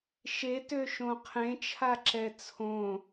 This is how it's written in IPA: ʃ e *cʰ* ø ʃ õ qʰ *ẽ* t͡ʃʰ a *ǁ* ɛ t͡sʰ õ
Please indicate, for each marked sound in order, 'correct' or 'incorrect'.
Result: incorrect: t, correct, correct

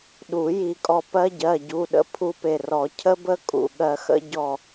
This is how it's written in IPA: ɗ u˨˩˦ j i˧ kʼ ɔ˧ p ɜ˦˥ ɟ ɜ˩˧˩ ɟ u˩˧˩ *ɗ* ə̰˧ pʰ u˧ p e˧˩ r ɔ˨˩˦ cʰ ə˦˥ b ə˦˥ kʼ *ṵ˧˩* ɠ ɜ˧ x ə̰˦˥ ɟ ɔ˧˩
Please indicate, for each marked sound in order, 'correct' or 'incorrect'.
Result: correct, correct

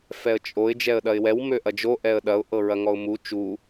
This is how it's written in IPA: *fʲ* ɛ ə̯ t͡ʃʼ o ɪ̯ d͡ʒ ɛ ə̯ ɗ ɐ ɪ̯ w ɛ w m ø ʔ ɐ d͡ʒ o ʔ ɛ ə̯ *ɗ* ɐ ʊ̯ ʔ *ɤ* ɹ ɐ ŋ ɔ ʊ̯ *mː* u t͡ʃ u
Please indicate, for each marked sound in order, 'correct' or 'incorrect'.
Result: incorrect: f, correct, correct, incorrect: m

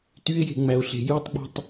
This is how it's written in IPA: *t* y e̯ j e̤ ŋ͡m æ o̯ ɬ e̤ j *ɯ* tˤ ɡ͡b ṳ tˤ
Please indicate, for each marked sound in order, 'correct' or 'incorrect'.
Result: correct, correct

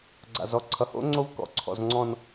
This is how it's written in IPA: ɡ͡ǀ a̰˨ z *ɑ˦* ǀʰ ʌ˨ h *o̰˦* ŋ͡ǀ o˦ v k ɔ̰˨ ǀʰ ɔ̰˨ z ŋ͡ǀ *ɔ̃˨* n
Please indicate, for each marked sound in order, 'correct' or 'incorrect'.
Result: incorrect: ɔ˦, correct, correct

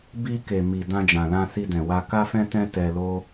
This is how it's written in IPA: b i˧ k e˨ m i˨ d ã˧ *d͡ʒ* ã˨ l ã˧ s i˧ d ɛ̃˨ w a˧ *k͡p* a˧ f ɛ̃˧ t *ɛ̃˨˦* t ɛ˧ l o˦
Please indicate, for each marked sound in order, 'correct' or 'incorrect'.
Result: correct, incorrect: k, incorrect: ɛ̃˧

